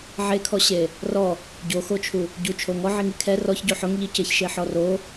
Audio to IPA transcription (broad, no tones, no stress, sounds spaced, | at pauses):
ʕ e kʰ ɔ ɕ e | r ɔ | ɟ o x o t͡ʃʰ u | ɟ u t͡ʃʰ o ŋ ɔ ʕ i ŋ i kʰ ɛ r ɔ ç ɟ o ħ ʊ ŋ ʎ i c ɪ ç ʃ e ħ ɔ r o